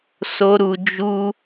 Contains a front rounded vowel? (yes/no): no